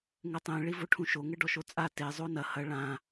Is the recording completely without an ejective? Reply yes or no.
no